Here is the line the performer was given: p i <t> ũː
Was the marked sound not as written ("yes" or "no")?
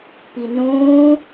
yes